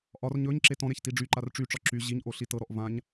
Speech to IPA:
ʔɒr ɲɵɲ ǁetɔ̃ɾeç tiɖ͡ʐyǃar ʈ͡ʂyʈ͡ʂɒ ǁy ʑiɲʔo ɬitɤɾɔʔ vãɲ

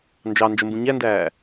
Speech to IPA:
nd͡ʒɑ nd͡ʒəmbũ ɲændæː

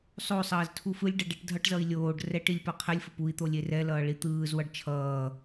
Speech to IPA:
sˤosˤʌːz tʰufɯlʲɖʌ ɖɛʈdʱʌʈzʌi̯ lʲoːɖ rɛʈilʲ paqʰɛlʲfop ui̯t̪o lʲerɛlʌː ɭit̪ɯːzwʌɖ t͡ʃʰʌː

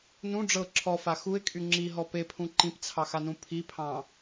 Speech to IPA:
nũ ɖ͡ʐɤ ǁʰɔfa xuɪ̯kʼy ŋ͡ǁiɦɔ pepʰũ ǃĩpt͡sʰɑxanũ pʰipʰɑ̃

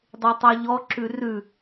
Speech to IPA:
dˤetˤɛʎɔ ǁʉrʉ

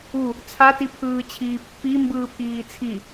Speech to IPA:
u | t͡sʰatipʰɯːt͡ɕʰiː pːi mbɯːpʰiːt͡sʰi

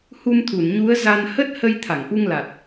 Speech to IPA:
hu˧mt̪ʰu˧˩n ɲu˨˦ə̯ za˧n hə˦˥t̚hə˧j t̪ʰa˧˩ŋʔu˧ŋla˨˩t̚

